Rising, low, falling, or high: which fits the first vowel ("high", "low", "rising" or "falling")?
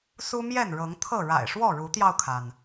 high